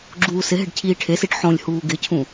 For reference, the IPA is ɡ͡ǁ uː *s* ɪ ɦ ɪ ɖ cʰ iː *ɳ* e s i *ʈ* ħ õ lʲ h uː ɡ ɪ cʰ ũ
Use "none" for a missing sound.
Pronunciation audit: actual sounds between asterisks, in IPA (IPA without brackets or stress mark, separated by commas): s, ʈʰ, ʈ